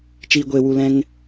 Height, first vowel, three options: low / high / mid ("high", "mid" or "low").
high